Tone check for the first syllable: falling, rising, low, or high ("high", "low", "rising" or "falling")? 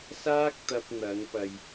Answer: high